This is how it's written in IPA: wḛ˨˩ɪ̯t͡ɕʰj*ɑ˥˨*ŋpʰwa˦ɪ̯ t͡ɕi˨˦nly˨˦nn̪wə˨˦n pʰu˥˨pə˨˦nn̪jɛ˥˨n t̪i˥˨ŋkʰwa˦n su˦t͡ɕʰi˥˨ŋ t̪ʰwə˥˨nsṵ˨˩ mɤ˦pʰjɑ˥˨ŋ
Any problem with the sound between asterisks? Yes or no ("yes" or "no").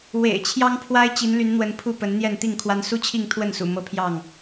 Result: yes